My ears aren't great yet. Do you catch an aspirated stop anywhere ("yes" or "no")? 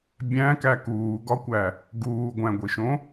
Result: no